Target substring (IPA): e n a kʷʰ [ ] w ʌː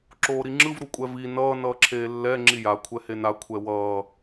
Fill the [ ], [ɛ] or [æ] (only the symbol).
ɛ